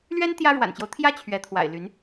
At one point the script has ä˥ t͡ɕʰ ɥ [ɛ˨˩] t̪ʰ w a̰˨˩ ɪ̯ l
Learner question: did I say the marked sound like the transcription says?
no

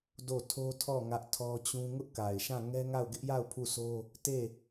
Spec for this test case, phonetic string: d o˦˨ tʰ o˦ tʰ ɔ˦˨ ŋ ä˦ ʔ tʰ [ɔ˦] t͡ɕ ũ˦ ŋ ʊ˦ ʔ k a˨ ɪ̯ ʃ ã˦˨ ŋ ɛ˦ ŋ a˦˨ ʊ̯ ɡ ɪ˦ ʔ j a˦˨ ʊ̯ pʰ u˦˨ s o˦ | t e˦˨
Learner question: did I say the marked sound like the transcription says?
yes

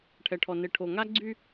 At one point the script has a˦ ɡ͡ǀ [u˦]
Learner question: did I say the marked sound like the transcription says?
no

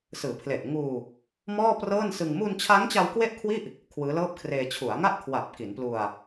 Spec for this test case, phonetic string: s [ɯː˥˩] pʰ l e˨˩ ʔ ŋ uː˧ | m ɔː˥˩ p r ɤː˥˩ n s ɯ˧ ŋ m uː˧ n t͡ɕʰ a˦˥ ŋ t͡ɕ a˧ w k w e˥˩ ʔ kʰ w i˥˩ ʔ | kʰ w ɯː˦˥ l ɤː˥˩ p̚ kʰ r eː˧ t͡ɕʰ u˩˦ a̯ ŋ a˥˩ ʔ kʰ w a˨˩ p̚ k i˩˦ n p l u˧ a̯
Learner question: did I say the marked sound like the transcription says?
no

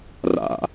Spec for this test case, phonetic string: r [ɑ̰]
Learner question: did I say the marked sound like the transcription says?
no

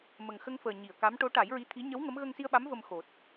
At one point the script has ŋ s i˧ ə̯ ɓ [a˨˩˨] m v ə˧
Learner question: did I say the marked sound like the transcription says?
no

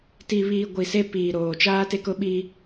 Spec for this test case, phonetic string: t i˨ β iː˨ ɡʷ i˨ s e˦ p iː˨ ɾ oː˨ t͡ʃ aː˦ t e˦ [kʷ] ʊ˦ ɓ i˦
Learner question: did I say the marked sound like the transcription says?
no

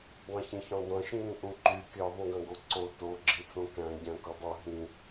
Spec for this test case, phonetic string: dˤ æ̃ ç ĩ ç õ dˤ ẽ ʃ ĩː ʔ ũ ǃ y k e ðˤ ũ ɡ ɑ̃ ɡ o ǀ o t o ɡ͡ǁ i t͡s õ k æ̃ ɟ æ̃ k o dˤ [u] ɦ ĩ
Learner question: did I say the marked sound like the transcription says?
no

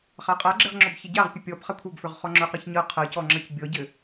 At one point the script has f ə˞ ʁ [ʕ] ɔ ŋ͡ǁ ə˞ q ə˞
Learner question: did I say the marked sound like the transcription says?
no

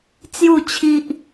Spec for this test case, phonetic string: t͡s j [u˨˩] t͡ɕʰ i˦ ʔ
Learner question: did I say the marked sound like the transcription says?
no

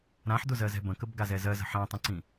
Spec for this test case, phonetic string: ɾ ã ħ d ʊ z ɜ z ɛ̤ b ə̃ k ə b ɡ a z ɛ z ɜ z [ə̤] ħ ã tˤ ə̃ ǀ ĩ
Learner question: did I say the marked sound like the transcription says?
yes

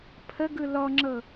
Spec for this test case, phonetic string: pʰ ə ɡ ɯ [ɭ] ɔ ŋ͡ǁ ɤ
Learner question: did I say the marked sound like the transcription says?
no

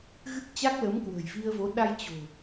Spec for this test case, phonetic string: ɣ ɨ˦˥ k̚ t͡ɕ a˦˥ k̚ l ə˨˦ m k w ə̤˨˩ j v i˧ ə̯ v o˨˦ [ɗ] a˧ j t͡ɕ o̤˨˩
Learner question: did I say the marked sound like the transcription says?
yes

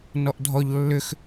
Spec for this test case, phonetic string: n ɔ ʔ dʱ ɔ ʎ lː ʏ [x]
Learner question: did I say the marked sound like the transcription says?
yes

